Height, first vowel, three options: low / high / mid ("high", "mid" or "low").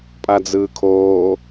low